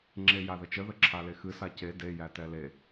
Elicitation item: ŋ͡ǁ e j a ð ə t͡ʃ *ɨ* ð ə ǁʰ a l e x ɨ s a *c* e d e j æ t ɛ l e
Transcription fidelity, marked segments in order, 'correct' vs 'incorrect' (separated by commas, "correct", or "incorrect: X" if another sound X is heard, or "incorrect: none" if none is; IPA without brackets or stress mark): incorrect: ə, correct